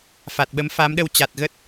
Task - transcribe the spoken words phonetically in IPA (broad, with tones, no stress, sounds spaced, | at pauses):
f a˨˩ t̚ ɓ ə˨˦ m f a˨˦ m ɗ ə˧ w t͡ɕ a˨˩ t̚ ɣ ə˦˥ t̚